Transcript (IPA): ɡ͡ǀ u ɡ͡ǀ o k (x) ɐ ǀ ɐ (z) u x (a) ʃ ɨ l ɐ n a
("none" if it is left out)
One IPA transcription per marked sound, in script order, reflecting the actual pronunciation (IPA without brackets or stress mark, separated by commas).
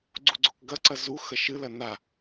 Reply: ɡ, z, ɐ